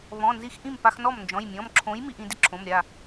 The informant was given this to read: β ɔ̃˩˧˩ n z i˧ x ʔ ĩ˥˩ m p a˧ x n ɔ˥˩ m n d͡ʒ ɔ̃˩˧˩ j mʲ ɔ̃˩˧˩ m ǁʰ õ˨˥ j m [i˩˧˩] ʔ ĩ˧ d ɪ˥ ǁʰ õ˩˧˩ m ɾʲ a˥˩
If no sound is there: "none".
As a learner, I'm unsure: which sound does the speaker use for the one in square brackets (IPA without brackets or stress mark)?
i˧